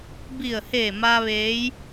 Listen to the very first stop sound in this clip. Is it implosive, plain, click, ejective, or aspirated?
plain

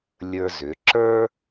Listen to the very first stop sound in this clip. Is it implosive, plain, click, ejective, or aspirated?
click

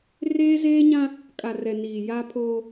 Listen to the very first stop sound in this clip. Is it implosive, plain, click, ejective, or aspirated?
ejective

